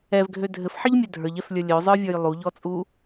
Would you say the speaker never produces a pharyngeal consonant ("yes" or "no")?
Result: no